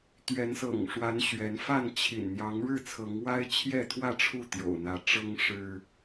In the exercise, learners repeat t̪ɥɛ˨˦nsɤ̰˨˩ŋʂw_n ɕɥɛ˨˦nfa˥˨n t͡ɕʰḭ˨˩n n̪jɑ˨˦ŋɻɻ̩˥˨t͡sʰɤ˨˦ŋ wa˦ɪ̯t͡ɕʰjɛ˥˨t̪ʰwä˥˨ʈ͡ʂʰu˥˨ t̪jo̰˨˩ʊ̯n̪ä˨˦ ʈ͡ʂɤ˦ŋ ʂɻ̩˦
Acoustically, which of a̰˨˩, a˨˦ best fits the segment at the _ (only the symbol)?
a˨˦